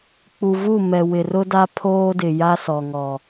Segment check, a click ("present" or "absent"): absent